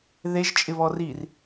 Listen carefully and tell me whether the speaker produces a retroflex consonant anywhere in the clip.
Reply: no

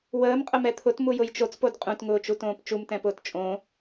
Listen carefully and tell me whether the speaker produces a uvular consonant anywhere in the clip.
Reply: yes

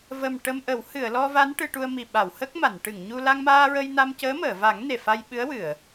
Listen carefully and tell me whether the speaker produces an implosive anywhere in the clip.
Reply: yes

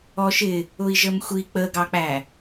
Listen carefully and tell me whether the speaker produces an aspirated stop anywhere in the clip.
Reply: no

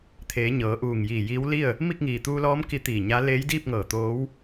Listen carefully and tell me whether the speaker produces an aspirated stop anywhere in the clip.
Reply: yes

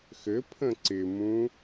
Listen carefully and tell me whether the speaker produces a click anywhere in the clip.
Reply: yes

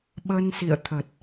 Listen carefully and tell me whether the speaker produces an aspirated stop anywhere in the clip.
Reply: yes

